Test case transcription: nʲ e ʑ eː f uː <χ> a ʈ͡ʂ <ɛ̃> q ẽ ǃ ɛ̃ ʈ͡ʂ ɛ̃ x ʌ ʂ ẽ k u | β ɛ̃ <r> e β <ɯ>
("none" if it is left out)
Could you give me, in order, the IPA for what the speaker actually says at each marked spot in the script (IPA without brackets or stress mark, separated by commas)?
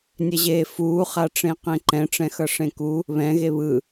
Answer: χ, ẽ, ɣ, ɯ